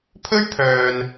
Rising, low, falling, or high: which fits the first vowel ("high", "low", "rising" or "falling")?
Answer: high